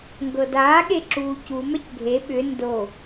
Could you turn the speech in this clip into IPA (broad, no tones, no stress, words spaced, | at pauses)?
ŋɡɤdaːɠe ǁuːcumɛc ɡʱe ɓʏ ndo